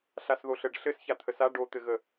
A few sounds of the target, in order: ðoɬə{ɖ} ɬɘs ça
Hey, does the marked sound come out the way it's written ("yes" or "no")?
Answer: yes